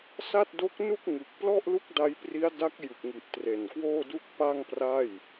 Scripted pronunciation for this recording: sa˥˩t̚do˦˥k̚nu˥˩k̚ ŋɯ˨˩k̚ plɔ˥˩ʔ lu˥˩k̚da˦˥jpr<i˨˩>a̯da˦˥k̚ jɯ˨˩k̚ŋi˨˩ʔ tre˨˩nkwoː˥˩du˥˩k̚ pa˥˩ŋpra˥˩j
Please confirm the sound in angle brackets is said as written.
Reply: no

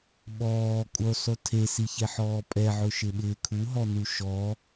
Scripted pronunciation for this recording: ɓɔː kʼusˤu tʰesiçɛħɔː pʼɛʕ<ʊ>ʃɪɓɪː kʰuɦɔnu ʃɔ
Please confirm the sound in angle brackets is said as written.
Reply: yes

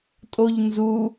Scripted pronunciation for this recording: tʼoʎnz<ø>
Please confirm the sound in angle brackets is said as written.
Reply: no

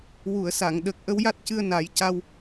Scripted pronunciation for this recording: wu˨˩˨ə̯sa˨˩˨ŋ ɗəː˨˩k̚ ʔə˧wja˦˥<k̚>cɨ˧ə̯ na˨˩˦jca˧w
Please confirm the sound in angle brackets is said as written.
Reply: no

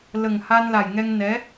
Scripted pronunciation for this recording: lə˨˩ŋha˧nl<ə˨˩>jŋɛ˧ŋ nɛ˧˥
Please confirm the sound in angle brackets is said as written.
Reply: no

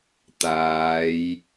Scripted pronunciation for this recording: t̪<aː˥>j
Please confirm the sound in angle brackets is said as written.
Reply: no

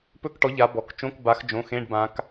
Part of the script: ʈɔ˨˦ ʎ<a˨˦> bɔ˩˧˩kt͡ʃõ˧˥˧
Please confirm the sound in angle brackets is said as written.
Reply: yes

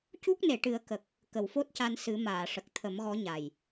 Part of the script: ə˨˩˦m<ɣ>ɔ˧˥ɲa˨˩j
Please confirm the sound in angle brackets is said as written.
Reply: yes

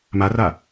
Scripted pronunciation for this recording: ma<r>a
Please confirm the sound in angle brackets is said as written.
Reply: yes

